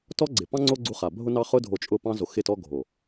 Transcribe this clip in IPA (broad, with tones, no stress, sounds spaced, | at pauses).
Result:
t ɔ˦ ɡ͡ǀ ɪ˨ p ɑ̃˦ ŋ͡ǀ o˦ ɡ͡ǀ u˧ χ a˨ bʱ ʊ˦ n ɑ˦ χ ʊ˦ dʱ o˧ t͡ʃʼ ʊ˦˨ p ɑ̃˦ z o˧ x ɪ˦˨ t ɔ˦ ɡʱ o˨